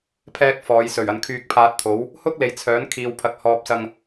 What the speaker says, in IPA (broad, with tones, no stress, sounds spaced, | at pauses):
pʰ ɛː˥ k̚ f ɔː˨˧ j s ɵ˨˩ ɥ ɐ˨ n kʰ yː˧ k̚ pʰ aː˧ t̚ t̪ʰ o˨˥ w | h ʊ˥ k̚ l e˨˧ j t͡sʰ œː˨˥ n kʰ iː˨ w pʰ ɐ˨ k̚ h ɔː˧ p̚ s ɐ˧ ŋ